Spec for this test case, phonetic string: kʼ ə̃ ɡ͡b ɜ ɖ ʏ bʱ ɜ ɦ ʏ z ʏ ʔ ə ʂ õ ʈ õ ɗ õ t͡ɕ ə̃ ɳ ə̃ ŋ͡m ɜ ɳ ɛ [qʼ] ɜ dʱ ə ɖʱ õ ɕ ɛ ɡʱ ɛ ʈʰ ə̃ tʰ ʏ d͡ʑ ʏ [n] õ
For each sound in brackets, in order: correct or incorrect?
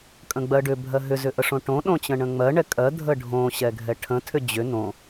incorrect: kʼ, correct

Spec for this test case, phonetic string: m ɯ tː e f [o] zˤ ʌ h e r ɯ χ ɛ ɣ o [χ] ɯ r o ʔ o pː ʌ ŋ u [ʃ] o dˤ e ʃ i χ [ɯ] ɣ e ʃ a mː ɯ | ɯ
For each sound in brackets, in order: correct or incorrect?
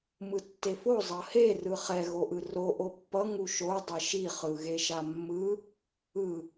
correct, incorrect: ʔ, correct, correct

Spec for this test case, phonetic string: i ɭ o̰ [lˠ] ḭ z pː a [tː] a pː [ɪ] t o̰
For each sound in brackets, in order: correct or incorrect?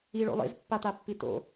correct, incorrect: t̪, incorrect: i

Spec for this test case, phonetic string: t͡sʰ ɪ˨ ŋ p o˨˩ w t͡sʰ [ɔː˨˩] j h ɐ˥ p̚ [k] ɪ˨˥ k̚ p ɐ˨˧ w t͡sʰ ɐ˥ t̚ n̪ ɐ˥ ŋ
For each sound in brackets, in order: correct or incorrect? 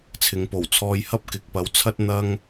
incorrect: ɔː˧, correct

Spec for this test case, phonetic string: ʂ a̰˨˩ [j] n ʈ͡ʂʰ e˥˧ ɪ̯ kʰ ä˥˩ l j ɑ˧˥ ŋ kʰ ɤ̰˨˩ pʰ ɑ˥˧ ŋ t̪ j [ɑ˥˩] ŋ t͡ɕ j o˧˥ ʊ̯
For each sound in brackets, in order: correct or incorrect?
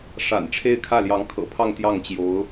incorrect: none, correct

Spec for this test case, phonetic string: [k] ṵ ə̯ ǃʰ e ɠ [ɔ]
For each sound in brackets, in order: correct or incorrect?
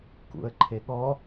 correct, correct

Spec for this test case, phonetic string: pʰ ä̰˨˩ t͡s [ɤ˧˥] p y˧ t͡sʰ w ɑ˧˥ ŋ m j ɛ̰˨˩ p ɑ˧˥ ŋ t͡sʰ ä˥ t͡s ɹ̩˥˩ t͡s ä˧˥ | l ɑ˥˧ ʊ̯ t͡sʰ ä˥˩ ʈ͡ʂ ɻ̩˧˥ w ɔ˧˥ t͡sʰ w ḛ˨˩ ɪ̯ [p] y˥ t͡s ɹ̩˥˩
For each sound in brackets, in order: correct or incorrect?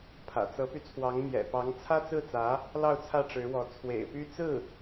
correct, correct

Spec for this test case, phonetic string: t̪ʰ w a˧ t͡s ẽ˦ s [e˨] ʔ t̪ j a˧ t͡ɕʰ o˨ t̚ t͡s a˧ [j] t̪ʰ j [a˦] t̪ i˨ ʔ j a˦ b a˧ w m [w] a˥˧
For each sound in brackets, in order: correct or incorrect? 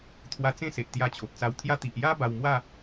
correct, incorrect: w, correct, correct

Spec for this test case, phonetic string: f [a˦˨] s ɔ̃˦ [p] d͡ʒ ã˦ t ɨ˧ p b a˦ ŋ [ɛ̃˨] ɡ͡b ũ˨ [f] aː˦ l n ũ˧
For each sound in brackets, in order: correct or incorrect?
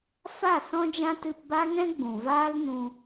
correct, incorrect: none, incorrect: ɛ̃˦, incorrect: v

